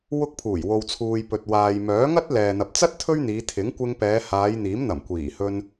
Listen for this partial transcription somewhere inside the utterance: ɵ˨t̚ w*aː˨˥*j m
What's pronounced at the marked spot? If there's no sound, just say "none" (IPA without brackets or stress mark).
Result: aː˨